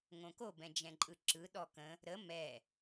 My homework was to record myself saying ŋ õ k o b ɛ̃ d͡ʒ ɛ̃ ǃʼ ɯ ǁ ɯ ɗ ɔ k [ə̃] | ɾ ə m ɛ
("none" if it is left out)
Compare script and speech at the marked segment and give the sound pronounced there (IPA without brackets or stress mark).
ə̃